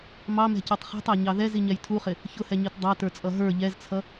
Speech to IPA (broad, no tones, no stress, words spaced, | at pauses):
mɑmɛ̤cɛtˤ χɛ̤tˤæɲɑ ðɛziɲɛj tʰuχɪ | çʊhɛɲit dˤɑtə˞t͡sʼʌ ɦə˞ ʎɛzt͡sʰʌ